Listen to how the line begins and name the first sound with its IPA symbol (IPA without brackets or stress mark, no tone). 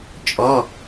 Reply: t͡ʃʼ